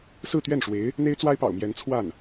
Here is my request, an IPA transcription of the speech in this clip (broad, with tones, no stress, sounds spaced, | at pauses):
s ɹ̩˥˧ t̪ ɥ ɛ˥˩ n ʂ w e˧˥ ɪ̯ | n̪ e˥ ɪ̯ t͡s w a˥ ɪ̯ p ɑ̰˨˩ ʊ̯ m j ɛ˧˥ n t͡sʰ w a˥˩ n